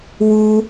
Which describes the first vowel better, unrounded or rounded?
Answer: rounded